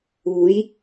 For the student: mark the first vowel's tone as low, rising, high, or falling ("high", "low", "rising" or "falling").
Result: rising